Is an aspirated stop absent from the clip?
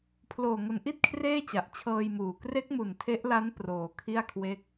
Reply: no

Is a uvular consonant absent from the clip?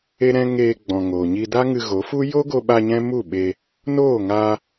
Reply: yes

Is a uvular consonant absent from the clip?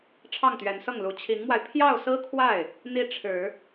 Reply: yes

